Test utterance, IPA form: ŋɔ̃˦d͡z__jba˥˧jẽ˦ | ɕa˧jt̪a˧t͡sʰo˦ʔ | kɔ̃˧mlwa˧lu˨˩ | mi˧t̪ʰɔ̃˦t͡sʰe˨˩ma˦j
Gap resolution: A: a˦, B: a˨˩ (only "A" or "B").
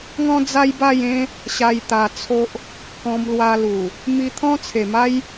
A